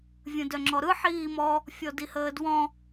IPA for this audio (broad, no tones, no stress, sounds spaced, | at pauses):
vʲ ə̃ d œ ŋ͡ǁ ɔ ɾ ɯ ħ iː m ɔ | fʲ ɔ d i h əː d w ɔ̃